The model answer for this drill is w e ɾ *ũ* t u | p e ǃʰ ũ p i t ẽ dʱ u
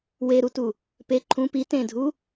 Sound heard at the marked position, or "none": u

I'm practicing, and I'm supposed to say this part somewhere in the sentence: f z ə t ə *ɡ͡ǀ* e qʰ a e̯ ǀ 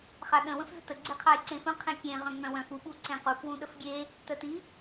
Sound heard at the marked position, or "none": ɡ͡ǀ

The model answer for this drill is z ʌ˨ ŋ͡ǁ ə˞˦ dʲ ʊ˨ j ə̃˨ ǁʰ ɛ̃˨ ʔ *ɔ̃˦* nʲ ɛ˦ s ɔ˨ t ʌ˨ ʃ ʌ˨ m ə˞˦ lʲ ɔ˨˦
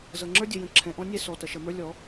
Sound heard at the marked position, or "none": ɔ̃˦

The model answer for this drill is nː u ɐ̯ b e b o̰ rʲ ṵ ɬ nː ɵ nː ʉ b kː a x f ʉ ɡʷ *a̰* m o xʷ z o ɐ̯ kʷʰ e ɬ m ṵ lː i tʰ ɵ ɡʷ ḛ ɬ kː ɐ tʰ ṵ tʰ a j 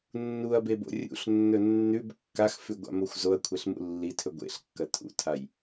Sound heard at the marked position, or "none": a̰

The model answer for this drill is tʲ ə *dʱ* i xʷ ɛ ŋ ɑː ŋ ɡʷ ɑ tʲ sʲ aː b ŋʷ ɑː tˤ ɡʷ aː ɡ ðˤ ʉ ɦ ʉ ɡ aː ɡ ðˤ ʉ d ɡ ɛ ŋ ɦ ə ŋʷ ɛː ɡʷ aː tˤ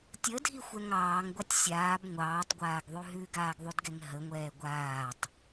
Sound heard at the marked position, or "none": dʱ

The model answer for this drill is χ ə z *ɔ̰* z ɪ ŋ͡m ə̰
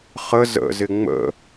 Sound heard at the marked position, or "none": ə̰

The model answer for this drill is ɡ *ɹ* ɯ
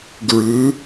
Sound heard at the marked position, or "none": ɹ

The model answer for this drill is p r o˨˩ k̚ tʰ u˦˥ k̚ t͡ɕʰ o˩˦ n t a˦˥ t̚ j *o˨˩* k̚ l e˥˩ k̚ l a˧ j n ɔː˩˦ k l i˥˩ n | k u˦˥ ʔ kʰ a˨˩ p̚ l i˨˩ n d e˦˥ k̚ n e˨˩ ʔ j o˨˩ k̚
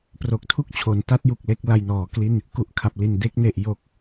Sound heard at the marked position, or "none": u˨˩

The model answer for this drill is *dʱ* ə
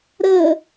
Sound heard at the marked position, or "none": ɾ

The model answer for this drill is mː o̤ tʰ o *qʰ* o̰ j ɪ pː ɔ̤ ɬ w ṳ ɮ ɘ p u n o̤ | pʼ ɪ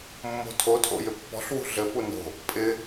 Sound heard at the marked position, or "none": tʰ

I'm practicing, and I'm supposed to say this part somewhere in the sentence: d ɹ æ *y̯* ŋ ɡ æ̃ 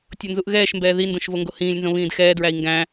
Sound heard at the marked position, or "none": i̯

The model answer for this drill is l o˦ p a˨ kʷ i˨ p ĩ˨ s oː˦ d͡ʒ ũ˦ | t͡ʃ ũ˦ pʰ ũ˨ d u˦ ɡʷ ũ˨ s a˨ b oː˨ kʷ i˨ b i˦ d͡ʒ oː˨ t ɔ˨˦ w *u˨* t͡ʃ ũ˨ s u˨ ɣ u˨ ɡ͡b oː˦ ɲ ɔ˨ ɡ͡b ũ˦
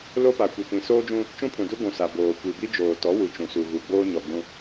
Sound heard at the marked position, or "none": u˨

